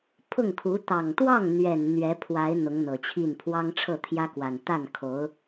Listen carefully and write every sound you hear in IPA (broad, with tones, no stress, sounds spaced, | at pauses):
pʰ ʊ˥˩ ŋ kʰ u˧˥ t̪ ɑ˨˩ ŋ t̪ w ɑ˥˩ ŋ n̪ ɥ ɛ˨˩ n n̪ ɥ ɛ˧˥ pʰ w a˧˥ ɪ̯ n̪ ʊ˧˥ ŋ n̪ ɤ˨˩ t͡ɕʰ i˥˩ n pʰ w ɑ˥ ŋ ʈ͡ʂʰ ɤ˥˩ t̪ʰ j ä˥ k w a˨˩ n t̪ a˥˩ n kʰ o˧˥ ʊ̯